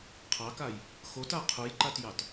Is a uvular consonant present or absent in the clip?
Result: present